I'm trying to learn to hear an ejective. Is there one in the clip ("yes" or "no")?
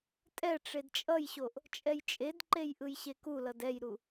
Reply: yes